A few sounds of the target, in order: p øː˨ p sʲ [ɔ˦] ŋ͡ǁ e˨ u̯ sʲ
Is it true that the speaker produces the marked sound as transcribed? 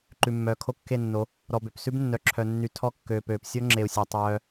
no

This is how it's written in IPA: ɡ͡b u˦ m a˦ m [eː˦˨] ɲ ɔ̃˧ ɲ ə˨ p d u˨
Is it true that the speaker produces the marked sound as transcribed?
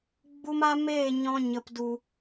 yes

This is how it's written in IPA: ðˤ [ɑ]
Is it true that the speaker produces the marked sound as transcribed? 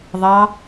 yes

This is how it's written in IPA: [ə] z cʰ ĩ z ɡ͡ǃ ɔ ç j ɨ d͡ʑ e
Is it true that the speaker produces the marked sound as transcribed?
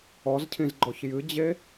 no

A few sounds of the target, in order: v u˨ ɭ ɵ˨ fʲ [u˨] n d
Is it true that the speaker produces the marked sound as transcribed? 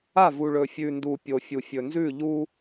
no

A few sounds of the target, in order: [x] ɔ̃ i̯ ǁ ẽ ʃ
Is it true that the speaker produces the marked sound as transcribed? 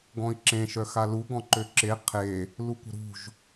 no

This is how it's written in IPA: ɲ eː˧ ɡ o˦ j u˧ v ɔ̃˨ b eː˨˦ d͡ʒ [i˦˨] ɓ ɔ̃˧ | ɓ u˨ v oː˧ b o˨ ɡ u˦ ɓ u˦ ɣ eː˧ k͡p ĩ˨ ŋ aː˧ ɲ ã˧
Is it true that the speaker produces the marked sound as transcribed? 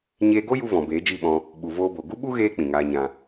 yes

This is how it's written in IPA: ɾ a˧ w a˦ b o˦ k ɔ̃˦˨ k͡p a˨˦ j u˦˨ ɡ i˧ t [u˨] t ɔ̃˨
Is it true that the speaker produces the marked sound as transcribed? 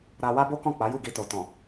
no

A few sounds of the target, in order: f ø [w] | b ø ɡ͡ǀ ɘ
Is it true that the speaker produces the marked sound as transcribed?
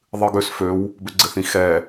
yes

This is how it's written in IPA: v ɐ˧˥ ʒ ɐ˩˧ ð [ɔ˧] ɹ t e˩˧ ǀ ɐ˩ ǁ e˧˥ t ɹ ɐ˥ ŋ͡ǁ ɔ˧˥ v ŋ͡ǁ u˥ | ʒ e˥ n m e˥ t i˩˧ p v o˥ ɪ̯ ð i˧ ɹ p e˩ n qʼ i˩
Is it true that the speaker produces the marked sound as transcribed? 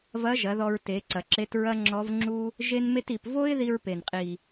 yes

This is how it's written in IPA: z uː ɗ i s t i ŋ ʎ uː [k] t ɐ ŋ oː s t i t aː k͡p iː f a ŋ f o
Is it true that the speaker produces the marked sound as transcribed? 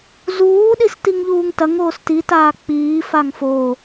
no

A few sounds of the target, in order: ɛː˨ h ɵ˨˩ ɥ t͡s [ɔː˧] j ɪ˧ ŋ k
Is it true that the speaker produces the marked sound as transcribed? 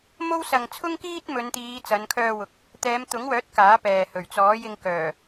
no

